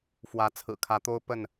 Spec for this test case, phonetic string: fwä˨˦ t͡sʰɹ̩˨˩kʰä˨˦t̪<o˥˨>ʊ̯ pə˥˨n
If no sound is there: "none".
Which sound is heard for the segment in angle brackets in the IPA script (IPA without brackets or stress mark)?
o˦